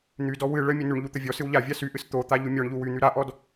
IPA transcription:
n̪ydɔ wɨ ɭə mʲənyɳʎu t̪əvʲɔsɨw ʎavʲa syʔɨs t̪ot̪a ʎumʲɔɳʎu wyn̪y ɾaʔɔd

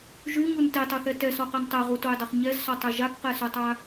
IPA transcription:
ʒyɲun tetˤuθɛ tɛsɔqɛn tˤɛʁutojdˤɐχ ɲɛzsɔtˤɛ ʒakqɛsotˤa

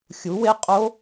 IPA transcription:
xʲu˨˥we˦˥ qʼo˦˥

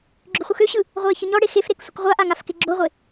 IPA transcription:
ɡ͡ǁʏχʷɯxøɕɯ | ʁʷeːçəɲɔɽe xefɾek sʷəkʁʷaʔa ŋafkeɡ͡ǁoʁʷe

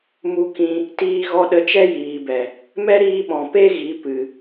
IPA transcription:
mu˧kĩ˧ | tiː˧ɣɔ˧ɗə˧t͡ʃɛ˦ jiː˨bɛ˨ | mɛ˦ɾiː˧ɓɔ̃˨ pe˦ ɣi˨˦ pɨ˨

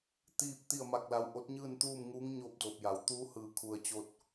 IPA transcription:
t̪iː˥˨p̚ t̪i˥˨ə̯ma˥˨k̚la˧w ʔo˧˥t̚ɲɯː˥˨nt̪uː˥˨mŋuː˧˥ŋ ɲoː˥˨p̚doː˧˩p̚ja˩˧w t̪uː˧˥hɯː˧˩kʰu˧˩ə̯ t͡ɕo˧t̚

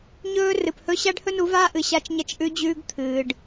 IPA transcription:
ɲɵː˦ rɨ˨phɵ˦ ɕa˦ɖhɵ˦nu˨˦vaː˦ ʔɨ˨ɕa˦t͡ʃɲɐ˦t͡ʃ ʔʉ˦d͡ʑʉː˦ɡ t̪ʰɨː˨ɖ

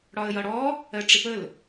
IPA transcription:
ɽɒə̯jʌɽɔ | ɜʈ͡ʂɪpəl

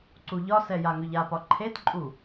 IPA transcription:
ǀuʎɒsɛ jaŋʏʎapɒ ǃʰetǃʼu

